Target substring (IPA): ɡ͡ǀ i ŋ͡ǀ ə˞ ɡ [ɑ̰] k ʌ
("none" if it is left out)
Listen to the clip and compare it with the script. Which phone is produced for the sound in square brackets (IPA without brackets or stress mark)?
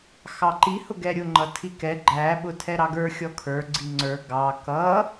ɑ